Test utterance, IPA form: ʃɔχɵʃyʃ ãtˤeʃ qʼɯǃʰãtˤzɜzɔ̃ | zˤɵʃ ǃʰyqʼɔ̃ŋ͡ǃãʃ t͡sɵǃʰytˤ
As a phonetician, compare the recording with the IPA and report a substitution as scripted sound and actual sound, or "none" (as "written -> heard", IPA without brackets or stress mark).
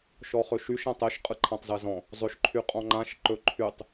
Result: t͡s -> ǃ